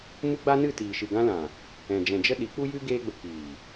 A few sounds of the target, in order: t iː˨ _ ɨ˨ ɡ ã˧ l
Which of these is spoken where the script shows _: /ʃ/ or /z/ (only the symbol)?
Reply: ʃ